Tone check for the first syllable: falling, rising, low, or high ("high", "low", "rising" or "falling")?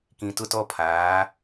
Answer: low